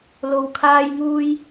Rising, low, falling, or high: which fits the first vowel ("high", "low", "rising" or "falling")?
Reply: low